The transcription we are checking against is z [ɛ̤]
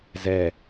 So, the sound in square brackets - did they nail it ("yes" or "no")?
no